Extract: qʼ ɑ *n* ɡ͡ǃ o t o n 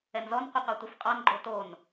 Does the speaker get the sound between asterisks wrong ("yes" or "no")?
no